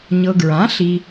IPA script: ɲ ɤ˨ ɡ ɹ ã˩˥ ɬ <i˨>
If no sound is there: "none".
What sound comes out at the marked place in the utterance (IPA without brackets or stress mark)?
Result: i˨